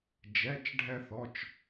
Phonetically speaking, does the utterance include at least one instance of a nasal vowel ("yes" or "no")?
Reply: no